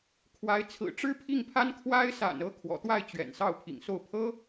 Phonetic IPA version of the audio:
kʰ w a˧˥ ɪ̯ t͡sʰ ɹ̩˨˩ ʈ͡ʂ ɻ̩˥ pʰ i˥˩ ŋ pʰ a˥ n kʰ w a˥ ɪ̯ s a̰˨˩ n ɤ˧˥ kʰ w ɔ̰˨˩ t̪ w a˥˩ ɪ̯ t͡ɕ ɥ ɛ̰˨˩ n s ɑ˥˩ ʊ̯ pʰ ḭ˨˩ ŋ s o˥˩ ʊ̯ pʰ ɤ˥

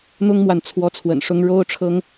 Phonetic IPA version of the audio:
n̪ ʊ˥ ŋ m w a˨ n t͡sʰ w ɔ˧˥ t͡sʰ w ə̰˨˩ n ʂ ʊ˧˥ ŋ ɻ o˥ ʊ̯ ʈ͡ʂʰ ɤ˥ ŋ

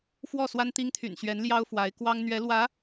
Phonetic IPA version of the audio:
f w ɔ˥˩ s w a˥ n t̪ i˥ ŋ t̪ʰ y̰˨˩ n ɕ ɥ ɛ˧˥ n l j ɑ˥ ʊ̯ f w a˧˥ ɪ̯ k w ɑ˥ ŋ n̪ ɥ ɛ˧˥ l w ä˧˥

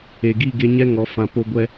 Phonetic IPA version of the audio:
e˨ ɡ i˦˨ ɡ e˧ ɲ ɛ˦ ŋ ɔ˨˦ f ã˧ p o˦ ɡʷ ɛ˦

